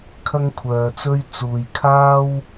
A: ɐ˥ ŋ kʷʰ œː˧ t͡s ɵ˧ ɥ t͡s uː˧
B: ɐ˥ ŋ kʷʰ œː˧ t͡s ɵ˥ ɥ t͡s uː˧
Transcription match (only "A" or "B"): B